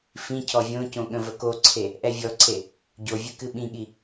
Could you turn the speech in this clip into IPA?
f ĩ cʰ ɔ vʲ õ c õ ɠ ə̃ v ə k o ǀʰ e | ʔ ɛ vʲ ɔ ǀʰ e | ɟ o vʲ ɨ k ɨ ɓ ĩ ɠ i

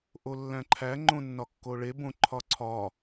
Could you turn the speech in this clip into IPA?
ʔ o lː æ̃ ǃʰ æ ŋ͡ǃ õ nː ɒ kː o ɭ e b õ ǃʰ ɒ ǀʰ ɒ

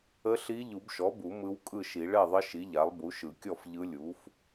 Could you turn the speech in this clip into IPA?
ə˧˥ ɬ i˧˥ ʎ u˨˩˦ b ʃ ɔ˩˥ b u˨˩˦ m ɯ˧˥ w kʼ ɯ˥˩ ʃ i˨˩˦ ɭ ɛ˥˩ ðˤ ə˧˥ ʃ i˩˥ ʎ a˩˥ lˠ b u˩˥ ʃ ɯ˨˩˦ kʲ ɔ˥˩ f ʎ ɯ˧˥ lʲ u˩˥ f

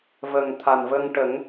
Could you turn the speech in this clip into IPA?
v ə˨˩ ŋ t̪ʰ a˨˩ n v ə˧ ŋ ʈ ə˨˩˦ ŋ

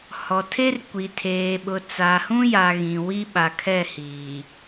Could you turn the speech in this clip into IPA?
h ɔ˨ tʰ e˦ r kʷ i˨ tʰ eː˨ ɓ ʊ˨ t͡s a˨ h ũ˦ j a˨ ɣ ĩ˨ w i˦ ɓ a˨ kʰ ɛ˦˨ h iː˨

